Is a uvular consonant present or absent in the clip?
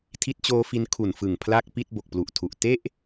absent